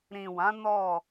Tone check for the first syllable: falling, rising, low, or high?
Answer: low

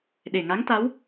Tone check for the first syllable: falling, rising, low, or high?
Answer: low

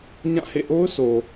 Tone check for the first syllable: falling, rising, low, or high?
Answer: falling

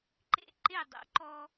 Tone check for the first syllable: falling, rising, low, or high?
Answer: falling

